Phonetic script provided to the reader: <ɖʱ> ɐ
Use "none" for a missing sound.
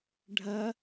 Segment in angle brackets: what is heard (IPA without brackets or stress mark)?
ɖʱ